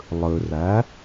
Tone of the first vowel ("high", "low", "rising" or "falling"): low